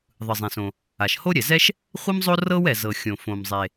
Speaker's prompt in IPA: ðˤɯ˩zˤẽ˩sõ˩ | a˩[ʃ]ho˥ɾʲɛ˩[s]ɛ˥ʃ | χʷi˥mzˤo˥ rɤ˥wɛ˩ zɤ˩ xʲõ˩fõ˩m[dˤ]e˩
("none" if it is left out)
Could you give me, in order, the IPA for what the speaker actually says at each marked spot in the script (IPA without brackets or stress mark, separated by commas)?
ʃ, z, zˤ